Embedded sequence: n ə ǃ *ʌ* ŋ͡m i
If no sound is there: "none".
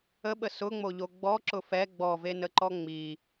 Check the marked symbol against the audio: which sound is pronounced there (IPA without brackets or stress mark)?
ɔ